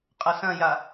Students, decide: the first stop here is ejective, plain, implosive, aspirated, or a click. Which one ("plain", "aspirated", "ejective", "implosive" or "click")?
ejective